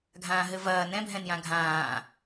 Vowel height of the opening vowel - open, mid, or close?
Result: open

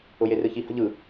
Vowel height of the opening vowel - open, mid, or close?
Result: close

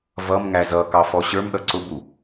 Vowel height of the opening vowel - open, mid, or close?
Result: mid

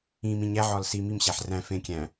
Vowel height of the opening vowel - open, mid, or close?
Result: close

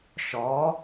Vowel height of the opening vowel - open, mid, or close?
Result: mid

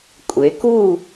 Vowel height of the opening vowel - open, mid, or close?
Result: mid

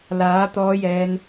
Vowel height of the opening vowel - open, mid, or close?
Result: open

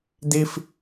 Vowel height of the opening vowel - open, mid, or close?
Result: close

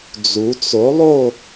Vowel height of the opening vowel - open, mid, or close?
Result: close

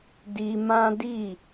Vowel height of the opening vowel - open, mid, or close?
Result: close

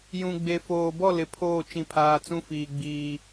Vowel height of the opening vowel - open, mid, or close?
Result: close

